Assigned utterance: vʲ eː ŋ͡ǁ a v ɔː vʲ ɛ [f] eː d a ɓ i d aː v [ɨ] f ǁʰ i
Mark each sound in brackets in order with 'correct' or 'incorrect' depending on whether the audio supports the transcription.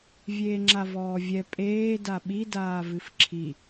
incorrect: pʼ, correct

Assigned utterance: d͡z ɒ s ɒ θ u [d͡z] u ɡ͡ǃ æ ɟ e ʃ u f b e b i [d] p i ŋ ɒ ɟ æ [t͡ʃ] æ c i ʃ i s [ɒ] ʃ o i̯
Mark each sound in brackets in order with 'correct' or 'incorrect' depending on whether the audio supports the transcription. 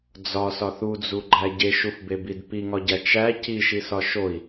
correct, correct, correct, correct

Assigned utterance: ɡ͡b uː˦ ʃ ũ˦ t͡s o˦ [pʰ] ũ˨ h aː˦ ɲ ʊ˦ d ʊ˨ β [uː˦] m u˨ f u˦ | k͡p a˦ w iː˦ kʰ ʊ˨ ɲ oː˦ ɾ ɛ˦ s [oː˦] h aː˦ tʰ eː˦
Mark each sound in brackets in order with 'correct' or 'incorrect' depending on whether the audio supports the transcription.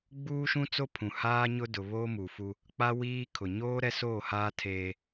correct, incorrect: oː˦, incorrect: oː˦˨

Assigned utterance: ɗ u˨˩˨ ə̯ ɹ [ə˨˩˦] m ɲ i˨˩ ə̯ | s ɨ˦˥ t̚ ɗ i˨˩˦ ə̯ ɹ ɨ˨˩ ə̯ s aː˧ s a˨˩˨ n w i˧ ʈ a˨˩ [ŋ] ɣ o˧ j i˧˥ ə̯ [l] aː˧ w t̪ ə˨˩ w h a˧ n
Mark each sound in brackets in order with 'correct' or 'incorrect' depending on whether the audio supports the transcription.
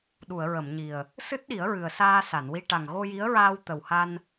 incorrect: ə˨˩˨, correct, incorrect: ɹ

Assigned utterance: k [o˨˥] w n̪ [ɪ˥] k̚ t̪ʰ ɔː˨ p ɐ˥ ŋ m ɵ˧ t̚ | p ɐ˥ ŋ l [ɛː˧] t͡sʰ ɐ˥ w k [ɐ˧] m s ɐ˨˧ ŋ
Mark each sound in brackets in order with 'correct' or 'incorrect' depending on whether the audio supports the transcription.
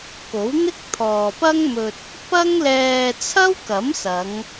correct, correct, correct, incorrect: ɐ˨˥

